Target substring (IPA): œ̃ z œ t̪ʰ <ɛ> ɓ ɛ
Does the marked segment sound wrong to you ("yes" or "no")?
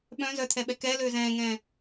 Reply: no